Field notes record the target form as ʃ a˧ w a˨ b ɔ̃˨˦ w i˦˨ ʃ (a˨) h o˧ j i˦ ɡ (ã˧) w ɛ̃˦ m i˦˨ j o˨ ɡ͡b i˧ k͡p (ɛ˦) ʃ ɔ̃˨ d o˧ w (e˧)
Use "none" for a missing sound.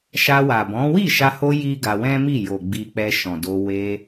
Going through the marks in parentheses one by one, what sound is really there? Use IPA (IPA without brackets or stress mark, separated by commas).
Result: a˧, a˧, ɛ˧, e˧